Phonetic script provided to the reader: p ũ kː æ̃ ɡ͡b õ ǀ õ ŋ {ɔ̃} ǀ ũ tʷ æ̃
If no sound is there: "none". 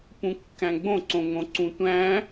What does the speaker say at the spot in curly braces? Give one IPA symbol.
õ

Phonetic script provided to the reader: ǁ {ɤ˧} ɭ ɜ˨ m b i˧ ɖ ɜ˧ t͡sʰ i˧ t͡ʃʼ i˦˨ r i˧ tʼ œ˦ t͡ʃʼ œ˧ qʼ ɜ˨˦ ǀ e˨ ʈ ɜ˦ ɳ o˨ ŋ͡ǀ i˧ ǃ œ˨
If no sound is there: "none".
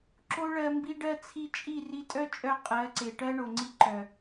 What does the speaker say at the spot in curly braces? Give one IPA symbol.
o˧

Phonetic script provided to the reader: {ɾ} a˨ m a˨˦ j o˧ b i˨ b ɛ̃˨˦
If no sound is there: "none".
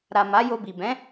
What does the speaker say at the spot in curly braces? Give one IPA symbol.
ɾ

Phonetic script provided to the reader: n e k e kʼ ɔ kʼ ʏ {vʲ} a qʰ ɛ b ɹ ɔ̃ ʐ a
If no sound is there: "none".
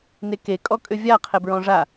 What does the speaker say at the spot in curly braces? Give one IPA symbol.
vʲ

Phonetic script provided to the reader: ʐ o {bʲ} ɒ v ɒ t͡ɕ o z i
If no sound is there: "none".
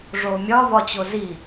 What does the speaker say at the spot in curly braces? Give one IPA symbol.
mʲ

